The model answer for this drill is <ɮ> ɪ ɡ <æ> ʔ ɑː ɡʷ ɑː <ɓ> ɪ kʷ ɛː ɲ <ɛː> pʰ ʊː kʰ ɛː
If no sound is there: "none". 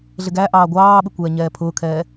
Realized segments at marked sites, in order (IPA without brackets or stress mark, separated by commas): ɮ, æ, ɓ, ɛː